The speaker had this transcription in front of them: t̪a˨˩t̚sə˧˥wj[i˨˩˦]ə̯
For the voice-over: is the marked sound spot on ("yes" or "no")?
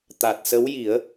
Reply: yes